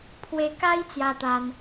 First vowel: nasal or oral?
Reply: oral